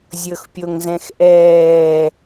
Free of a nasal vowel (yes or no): no